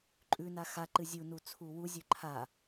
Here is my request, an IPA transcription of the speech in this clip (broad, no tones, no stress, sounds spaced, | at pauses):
ǃʼ ʉ n a x a ǃ ɨ zʲ u n u t͡sʰ u w u zʲ ɵ ǃʰ a